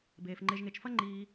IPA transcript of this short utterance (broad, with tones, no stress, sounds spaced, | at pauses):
b eː˩ f ŋ͡ǃ e˨ ʒ ŋ e˨ t͡ʃ f ɐ˦ ŋ͡ǃ iː˨